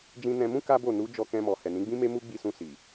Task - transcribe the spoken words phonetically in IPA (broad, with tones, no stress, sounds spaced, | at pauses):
d͡ʒ ĩ˧ n ɛ̃˧ m ũ˦ k a˦ b o˦˨ n u˨˦ d͡ʒ ɔ˧ k ɛ̃˧ m ɔ˨ h ɛ˨ n ĩ˨˦ ɡ͡b ĩ˦ m e˦ m u˦ ɡ͡b i˧ s ũ˧ s i˨